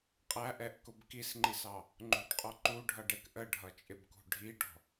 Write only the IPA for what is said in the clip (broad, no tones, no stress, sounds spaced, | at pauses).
qʼ æ ʔ ɛ ʔ k ʊ b k i s ŋ͡ǃ i s ɑ | ŋ͡ǃ ṳ ɖ qʼ ɔ ǃ u ɖʱ ʌ ɖ ɛ k ʔ ə ɖʱ ʌ t͡ʃʼ ɪ b k ṳ ɖʱ i ɖ ɔ̤